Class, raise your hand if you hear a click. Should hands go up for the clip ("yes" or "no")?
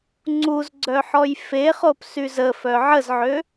yes